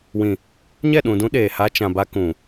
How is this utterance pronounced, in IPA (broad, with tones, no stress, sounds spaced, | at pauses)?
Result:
w ĩ˨ | ɲ ɛ˦˨ ɗ ũ˨ d ũ˦ ɗ eː˨ h a˦ t͡ʃ ã˨ b a˦ k ũ˨